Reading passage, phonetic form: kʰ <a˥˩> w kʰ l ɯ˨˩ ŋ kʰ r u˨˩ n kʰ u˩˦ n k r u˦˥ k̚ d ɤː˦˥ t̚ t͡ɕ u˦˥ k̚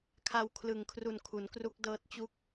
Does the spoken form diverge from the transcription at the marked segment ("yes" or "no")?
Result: yes